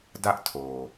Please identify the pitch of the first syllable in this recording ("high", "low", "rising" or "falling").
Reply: high